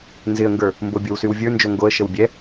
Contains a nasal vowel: no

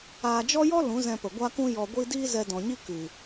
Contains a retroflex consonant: no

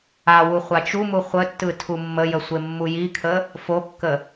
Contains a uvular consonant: yes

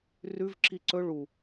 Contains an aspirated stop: no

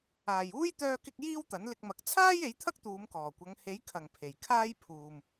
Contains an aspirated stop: yes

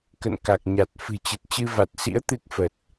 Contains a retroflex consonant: no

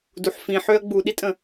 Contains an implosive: yes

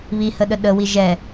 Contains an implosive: yes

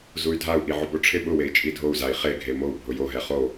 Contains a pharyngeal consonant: yes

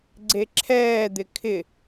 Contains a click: yes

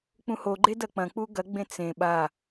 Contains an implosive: yes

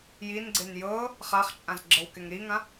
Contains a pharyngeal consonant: no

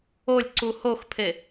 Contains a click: yes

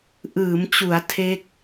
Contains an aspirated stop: yes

